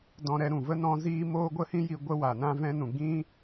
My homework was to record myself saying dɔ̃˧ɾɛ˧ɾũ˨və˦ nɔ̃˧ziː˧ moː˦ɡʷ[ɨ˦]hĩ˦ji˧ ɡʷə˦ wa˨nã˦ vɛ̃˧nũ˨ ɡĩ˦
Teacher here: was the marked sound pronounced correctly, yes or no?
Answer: no